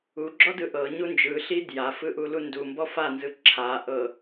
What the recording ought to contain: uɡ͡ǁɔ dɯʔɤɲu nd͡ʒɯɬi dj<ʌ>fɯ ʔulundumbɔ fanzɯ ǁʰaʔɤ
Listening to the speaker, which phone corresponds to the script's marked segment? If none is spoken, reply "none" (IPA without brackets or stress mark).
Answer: a